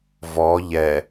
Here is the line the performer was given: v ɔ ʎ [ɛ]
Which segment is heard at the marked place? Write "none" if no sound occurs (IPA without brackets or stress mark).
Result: ɛ